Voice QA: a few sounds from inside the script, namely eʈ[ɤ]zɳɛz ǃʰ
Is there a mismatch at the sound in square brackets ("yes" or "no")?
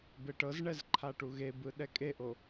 no